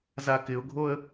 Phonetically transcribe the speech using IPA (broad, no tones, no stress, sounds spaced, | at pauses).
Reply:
z a k ɪ ʊ̯ ɡʱ o ə̯